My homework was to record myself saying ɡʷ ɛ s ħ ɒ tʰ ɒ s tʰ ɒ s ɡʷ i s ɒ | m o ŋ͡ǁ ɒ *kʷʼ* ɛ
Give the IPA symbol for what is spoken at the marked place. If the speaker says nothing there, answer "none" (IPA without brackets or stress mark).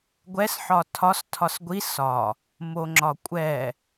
kʷʼ